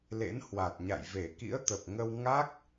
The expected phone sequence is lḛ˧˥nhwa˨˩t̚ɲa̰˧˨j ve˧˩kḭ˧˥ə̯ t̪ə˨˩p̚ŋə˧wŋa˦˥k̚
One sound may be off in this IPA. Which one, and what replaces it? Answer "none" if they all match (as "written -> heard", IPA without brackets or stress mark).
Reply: none